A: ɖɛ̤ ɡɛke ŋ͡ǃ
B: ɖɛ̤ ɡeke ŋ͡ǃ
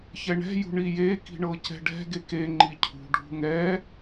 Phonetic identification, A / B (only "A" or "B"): B